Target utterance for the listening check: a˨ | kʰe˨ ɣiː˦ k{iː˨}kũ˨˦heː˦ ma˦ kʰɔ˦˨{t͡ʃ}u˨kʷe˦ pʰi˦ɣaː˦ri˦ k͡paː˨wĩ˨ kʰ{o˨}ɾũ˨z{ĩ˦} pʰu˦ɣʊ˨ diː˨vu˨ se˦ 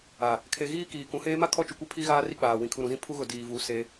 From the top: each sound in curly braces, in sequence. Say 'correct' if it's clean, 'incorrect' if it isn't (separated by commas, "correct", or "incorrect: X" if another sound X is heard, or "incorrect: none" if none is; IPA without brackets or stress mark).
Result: correct, correct, incorrect: u˨, correct